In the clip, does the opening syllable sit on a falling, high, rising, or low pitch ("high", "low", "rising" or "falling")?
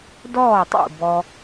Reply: falling